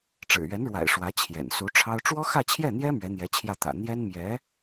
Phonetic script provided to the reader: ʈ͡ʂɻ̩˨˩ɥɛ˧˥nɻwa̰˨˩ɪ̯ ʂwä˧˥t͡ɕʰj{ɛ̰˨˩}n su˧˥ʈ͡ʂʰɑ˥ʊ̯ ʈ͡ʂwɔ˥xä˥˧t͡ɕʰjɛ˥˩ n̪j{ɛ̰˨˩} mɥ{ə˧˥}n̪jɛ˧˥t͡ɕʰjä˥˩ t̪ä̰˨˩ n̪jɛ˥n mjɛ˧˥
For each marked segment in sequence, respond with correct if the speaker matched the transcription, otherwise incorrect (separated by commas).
correct, incorrect, incorrect